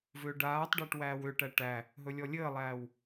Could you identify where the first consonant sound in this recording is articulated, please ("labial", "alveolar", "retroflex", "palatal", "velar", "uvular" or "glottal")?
labial